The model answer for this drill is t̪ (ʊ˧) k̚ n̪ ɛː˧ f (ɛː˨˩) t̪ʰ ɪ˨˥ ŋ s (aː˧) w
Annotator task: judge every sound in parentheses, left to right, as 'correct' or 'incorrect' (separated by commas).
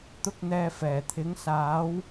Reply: incorrect, correct, incorrect